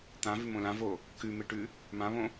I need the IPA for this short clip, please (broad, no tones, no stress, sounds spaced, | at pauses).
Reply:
t̪ ã v ʉ m õ l ã v o | k ʉ m e ʈ ʉ | m ã β õ